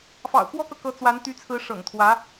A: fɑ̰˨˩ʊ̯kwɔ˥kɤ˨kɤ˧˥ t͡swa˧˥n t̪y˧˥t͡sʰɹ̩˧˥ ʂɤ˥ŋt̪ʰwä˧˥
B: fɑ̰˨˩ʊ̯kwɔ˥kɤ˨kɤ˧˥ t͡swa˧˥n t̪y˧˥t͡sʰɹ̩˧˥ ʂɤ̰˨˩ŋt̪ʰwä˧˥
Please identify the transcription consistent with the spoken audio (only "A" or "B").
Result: B